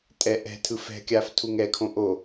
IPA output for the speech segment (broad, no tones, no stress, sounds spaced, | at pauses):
tʼ ɛ ʔ ɛ̤ tʰ ɯ f ɛ̤ kʲ aː f tʰ u ŋ ɛ kʰ õ ʔ o